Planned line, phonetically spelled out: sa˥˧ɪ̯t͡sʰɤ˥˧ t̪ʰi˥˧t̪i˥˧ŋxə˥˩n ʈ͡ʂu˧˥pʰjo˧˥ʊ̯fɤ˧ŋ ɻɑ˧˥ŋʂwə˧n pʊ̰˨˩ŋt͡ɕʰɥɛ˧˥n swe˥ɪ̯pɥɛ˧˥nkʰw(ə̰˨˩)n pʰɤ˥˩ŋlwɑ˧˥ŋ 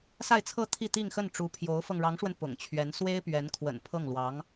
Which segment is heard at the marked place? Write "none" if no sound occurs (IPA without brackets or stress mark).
ə̰˨˩